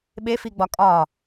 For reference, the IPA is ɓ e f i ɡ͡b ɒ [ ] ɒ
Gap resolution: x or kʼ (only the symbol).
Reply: kʼ